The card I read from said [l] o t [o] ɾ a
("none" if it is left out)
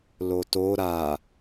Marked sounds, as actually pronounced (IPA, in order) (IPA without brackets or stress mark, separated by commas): l, o